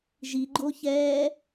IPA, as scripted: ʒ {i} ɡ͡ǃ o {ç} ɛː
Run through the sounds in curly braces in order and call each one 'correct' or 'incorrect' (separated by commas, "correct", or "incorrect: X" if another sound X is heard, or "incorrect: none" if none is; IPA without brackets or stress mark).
correct, correct